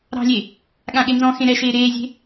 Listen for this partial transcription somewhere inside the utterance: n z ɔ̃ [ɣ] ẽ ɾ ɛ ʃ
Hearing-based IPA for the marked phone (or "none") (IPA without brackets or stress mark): x